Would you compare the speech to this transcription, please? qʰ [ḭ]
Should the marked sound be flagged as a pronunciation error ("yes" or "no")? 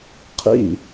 no